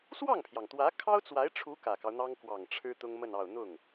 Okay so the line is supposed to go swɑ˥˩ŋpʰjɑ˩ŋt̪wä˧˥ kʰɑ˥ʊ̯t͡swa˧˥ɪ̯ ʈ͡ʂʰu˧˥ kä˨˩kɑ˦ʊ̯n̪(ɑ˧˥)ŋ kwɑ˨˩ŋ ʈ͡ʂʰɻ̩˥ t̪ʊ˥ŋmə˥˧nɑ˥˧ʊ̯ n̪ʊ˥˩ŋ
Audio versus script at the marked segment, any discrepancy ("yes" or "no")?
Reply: yes